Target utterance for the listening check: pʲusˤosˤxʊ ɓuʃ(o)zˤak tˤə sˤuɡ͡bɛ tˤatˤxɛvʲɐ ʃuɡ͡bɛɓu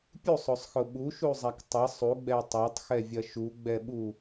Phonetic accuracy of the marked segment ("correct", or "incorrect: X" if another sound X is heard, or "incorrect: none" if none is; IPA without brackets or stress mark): incorrect: u